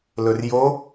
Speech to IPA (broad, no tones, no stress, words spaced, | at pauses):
lɵrjo